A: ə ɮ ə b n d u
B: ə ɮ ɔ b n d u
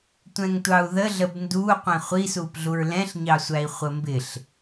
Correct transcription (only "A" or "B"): A